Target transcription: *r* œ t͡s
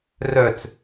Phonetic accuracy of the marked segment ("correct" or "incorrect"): correct